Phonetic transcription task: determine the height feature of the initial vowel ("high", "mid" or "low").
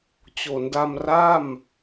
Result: mid